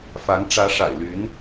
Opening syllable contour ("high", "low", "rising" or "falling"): rising